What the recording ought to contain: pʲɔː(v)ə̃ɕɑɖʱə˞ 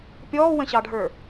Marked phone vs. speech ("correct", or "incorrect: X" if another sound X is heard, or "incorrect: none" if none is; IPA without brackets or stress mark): incorrect: w